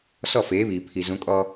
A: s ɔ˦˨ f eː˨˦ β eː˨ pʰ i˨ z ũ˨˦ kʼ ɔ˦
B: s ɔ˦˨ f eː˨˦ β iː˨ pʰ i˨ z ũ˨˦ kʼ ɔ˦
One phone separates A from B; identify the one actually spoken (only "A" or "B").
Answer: B